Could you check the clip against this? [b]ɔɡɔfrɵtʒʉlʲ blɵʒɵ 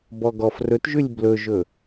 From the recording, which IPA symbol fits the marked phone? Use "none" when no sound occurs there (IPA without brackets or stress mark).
b